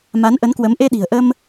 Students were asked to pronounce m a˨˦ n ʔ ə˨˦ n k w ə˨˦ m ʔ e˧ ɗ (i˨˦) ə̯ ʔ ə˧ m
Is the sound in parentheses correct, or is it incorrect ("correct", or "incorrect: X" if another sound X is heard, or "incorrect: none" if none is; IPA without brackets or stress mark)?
incorrect: i̤˨˩